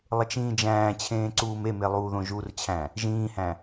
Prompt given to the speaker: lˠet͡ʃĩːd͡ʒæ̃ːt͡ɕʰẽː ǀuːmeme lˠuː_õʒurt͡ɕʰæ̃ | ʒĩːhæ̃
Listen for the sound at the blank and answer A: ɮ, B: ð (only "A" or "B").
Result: B